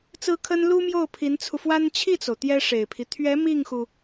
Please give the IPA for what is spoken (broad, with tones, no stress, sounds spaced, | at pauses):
t͡s ɹ̩˥ kʰ ə˥ n l u˥ m j o˥˩ ʊ̯ pʰ i˧˥ n t͡sʰ u˧ f w a˥ n t͡ɕʰ i˥˩ t͡s o˩ ʊ̯ t̪ j ɛ˥ ʂ e˨˩ ɪ̯ pʰ i˦ t̪ʰ ɥ ɛ˧˥ m i˥˩ ŋ x u˩